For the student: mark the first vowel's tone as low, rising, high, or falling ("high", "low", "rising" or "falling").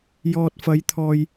low